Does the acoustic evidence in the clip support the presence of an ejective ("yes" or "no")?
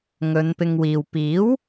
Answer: no